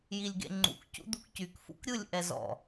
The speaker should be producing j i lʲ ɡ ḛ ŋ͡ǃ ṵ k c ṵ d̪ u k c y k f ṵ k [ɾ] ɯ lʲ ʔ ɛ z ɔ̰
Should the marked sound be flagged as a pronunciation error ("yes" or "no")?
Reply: yes